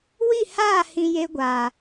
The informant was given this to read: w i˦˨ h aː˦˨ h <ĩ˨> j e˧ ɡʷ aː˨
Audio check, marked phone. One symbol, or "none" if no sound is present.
ĩ˨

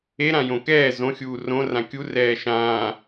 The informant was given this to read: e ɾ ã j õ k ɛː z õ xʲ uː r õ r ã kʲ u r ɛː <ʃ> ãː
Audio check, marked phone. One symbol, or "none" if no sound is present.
ʃ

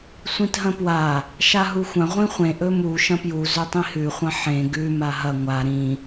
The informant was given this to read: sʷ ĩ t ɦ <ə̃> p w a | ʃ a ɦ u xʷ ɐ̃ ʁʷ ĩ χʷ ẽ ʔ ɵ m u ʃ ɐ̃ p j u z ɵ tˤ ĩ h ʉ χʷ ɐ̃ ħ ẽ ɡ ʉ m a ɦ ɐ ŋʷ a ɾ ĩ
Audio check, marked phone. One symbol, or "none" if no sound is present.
ɐ̃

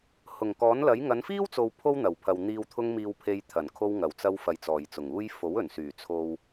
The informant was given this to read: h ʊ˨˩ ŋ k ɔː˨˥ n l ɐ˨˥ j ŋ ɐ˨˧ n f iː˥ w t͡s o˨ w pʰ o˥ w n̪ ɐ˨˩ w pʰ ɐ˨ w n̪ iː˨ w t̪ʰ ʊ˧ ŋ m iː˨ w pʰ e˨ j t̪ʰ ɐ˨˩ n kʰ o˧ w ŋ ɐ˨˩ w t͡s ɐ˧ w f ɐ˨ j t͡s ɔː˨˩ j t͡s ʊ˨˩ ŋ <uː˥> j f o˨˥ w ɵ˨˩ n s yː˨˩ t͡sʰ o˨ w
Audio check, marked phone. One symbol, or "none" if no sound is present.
uː˥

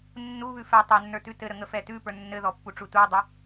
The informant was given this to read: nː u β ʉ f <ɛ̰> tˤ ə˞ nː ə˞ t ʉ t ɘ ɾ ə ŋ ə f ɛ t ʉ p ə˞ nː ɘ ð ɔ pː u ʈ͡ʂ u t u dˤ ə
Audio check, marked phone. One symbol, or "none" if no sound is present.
ɛ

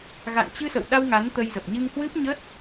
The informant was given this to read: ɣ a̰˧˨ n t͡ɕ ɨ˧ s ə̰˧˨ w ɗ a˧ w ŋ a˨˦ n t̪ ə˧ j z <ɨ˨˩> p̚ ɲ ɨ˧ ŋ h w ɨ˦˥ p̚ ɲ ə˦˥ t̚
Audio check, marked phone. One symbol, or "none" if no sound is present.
ə˨˩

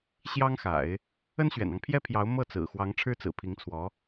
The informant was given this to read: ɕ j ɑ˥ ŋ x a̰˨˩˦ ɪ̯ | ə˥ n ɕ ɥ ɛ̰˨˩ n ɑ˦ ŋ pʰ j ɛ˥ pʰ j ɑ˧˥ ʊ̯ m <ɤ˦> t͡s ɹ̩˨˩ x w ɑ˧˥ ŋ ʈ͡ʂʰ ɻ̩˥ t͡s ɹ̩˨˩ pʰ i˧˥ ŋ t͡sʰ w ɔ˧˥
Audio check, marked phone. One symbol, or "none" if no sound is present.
ɤ˥˩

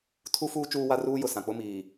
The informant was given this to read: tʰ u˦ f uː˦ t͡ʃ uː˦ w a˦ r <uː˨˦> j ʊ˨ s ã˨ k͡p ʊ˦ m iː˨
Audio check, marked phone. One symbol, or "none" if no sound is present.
uː˦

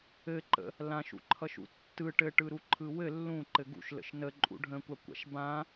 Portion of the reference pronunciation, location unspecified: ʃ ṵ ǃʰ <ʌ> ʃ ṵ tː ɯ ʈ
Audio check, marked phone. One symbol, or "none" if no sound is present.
ʌ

